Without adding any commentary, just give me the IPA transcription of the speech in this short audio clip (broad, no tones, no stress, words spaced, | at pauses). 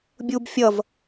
bʲub fʲʌv